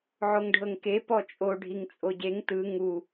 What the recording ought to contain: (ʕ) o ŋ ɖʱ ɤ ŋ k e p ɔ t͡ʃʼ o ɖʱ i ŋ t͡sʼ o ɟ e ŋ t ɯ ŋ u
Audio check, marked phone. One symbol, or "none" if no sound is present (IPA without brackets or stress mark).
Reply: ʕ